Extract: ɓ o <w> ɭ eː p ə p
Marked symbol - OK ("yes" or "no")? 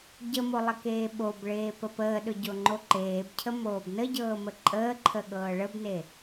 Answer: no